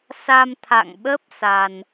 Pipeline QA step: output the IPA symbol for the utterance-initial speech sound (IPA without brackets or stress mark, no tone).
s